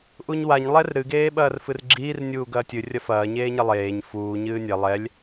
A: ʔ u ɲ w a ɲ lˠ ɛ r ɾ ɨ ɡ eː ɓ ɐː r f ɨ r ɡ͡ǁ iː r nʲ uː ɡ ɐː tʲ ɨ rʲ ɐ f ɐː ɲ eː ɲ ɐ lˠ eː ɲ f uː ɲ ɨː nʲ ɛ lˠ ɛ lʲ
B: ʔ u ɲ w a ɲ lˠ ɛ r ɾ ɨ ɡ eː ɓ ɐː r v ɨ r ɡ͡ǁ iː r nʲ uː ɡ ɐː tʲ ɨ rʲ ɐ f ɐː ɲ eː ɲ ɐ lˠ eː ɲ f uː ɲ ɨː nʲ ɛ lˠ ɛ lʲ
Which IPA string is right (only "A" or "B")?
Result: A